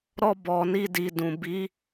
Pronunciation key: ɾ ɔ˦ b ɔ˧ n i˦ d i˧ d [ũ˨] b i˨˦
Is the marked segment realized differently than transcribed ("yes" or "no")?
no